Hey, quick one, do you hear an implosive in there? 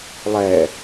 no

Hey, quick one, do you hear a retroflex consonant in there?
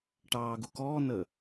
yes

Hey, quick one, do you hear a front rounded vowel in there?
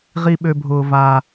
yes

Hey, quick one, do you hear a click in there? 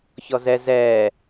no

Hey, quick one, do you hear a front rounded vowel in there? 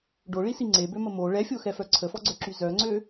yes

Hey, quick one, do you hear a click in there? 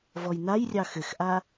no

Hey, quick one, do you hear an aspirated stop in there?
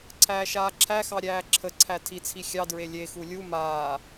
yes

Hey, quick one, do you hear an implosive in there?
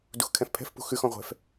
no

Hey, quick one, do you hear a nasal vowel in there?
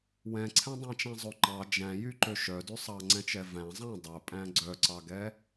yes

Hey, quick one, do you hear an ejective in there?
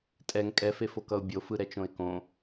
yes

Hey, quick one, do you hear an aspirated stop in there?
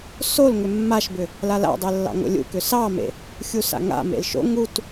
no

